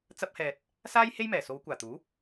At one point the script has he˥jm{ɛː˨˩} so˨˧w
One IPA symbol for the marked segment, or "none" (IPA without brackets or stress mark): ɛː˨˩